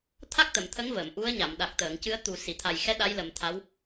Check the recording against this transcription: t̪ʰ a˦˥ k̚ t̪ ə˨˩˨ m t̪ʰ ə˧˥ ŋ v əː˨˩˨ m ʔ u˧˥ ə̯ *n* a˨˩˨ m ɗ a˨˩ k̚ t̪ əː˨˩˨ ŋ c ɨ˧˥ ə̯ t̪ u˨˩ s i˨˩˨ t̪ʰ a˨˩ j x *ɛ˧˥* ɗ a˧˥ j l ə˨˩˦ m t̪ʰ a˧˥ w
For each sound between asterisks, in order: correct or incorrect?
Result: incorrect, correct

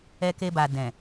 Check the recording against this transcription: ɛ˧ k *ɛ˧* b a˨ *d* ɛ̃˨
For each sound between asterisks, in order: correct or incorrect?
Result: incorrect, correct

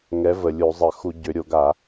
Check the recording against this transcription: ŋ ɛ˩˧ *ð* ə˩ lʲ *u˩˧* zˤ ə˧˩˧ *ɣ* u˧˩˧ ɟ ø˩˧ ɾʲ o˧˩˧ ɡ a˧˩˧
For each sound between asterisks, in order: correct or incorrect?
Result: incorrect, incorrect, incorrect

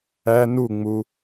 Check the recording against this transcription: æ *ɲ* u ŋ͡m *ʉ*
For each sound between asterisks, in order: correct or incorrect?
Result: incorrect, incorrect

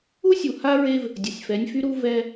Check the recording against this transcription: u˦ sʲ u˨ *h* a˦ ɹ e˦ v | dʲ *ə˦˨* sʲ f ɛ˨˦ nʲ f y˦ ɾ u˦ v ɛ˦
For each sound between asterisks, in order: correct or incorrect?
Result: correct, incorrect

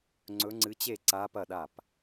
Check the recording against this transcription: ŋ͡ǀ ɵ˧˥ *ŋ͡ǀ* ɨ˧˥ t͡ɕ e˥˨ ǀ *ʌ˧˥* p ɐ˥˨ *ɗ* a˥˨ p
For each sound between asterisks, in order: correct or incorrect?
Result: correct, incorrect, correct

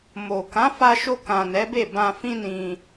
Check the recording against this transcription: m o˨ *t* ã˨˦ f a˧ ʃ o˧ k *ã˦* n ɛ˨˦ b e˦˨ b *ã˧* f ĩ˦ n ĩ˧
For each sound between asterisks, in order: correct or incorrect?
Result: incorrect, incorrect, correct

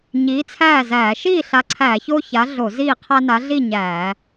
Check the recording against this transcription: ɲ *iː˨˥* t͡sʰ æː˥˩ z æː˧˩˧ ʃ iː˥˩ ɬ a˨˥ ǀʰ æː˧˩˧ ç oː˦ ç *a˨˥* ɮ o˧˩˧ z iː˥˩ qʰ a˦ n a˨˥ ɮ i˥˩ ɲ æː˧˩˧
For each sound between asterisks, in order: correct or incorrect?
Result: correct, correct

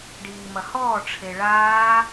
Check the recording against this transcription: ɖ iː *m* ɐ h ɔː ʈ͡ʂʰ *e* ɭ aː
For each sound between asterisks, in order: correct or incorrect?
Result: correct, correct

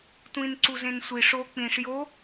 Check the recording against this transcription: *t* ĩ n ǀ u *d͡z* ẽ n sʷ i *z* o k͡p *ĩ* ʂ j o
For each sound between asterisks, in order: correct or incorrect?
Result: incorrect, incorrect, incorrect, correct

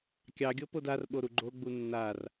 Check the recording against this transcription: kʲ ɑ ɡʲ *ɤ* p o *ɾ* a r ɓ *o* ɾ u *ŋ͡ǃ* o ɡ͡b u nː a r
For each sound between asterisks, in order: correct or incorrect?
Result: correct, incorrect, correct, incorrect

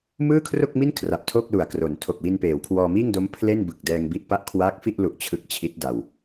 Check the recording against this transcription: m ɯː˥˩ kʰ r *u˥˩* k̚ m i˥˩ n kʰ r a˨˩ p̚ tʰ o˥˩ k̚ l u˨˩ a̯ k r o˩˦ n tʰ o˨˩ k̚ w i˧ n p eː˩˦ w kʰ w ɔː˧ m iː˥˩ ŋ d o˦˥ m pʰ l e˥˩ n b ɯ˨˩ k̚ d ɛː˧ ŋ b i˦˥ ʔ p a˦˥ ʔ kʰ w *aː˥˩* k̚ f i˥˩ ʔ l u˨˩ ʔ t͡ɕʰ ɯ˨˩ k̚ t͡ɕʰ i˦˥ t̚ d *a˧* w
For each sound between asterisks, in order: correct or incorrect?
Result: incorrect, incorrect, correct

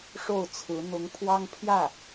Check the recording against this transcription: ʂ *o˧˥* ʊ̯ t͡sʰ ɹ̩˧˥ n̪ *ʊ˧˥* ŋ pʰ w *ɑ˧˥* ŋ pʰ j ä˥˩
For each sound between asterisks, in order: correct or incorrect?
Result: incorrect, correct, incorrect

